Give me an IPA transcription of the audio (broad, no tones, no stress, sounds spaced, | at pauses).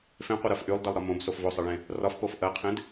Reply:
f ẽ qʷ e ɾ ɜ f ʔ y lˠ d e lˠ ɾ ɒ m õ b s o f v o sˤ ɜ ɭ ẽ | r ɒ f p o f ʔ ɜ qʰ ẽ d